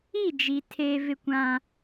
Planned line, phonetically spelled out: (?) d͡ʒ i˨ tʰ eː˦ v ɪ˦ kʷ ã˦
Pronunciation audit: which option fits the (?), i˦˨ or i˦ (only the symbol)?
i˦˨